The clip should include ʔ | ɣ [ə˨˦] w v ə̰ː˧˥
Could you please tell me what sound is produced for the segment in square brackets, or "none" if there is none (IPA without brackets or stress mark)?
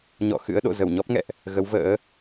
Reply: ə˨˦